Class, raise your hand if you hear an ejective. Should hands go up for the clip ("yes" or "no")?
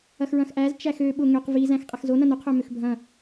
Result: yes